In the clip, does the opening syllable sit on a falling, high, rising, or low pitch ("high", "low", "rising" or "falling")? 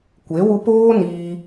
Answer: rising